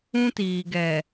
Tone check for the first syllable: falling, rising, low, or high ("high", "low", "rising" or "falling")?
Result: high